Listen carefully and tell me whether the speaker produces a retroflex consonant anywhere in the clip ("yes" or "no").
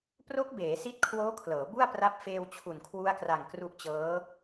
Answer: no